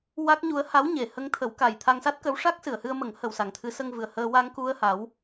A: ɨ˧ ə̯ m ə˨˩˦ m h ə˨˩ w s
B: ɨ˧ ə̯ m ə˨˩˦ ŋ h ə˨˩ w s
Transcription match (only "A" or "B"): B